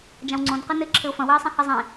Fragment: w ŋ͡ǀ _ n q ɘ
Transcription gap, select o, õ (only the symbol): õ